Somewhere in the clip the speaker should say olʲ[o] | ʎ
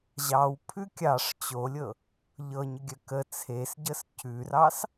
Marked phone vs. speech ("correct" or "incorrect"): incorrect